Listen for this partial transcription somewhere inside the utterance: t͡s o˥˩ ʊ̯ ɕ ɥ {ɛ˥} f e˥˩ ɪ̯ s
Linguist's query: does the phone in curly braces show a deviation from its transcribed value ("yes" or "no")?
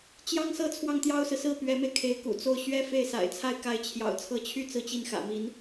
no